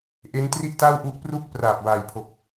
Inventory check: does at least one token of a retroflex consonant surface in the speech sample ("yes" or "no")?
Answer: no